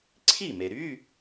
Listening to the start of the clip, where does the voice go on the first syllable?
falling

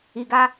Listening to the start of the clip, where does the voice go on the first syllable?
low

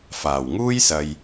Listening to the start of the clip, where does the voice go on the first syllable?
low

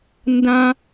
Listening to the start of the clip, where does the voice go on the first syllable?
high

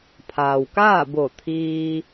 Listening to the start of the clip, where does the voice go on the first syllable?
low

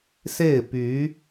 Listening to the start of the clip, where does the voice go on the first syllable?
falling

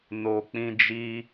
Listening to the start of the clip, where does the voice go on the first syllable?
low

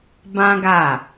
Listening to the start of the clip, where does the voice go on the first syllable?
high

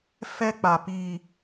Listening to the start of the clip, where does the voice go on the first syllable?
high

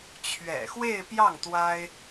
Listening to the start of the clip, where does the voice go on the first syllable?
low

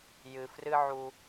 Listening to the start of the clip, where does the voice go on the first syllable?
low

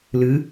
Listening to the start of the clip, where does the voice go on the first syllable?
rising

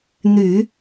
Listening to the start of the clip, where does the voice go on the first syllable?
low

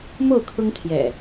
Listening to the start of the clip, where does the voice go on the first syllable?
falling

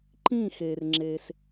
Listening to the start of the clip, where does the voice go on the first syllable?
falling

